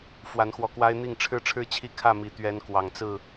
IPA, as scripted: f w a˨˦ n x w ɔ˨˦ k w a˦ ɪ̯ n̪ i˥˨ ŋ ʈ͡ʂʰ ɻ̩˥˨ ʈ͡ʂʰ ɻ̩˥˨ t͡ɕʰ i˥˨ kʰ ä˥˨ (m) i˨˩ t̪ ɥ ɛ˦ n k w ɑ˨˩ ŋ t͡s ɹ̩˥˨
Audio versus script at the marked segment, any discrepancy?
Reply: no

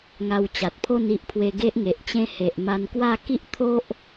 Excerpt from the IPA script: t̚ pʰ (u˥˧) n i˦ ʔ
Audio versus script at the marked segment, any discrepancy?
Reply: yes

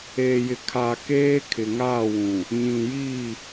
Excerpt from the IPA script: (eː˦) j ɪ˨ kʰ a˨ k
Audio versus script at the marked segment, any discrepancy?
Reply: yes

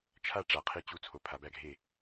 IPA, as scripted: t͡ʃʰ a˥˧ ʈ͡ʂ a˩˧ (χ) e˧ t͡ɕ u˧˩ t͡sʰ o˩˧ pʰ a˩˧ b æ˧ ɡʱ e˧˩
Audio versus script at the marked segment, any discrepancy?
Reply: yes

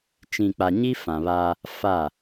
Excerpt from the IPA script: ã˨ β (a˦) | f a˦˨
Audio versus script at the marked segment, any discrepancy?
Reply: no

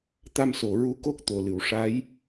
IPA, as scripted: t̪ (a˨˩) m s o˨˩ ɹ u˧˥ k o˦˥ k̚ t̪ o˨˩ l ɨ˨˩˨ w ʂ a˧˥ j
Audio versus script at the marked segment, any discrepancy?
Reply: yes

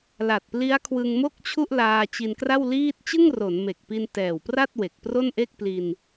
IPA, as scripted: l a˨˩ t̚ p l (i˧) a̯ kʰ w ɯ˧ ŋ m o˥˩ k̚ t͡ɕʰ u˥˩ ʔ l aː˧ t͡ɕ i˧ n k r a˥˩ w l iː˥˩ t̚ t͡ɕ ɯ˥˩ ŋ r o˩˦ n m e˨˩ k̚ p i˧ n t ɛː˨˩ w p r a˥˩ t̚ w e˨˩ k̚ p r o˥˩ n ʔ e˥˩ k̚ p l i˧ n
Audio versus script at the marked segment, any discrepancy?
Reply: yes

